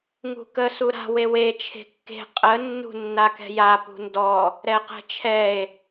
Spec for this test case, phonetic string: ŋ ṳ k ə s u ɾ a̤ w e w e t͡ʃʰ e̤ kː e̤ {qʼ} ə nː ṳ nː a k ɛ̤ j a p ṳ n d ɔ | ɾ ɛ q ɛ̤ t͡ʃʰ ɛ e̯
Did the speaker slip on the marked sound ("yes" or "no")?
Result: no